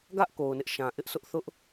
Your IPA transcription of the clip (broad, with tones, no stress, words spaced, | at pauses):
ɡä˦ʔ ko˨ʊ̯nɪ˦ʔʃã˨ ʔɪ˦ʔsʰʊ˦ʔθʊ˦ʔ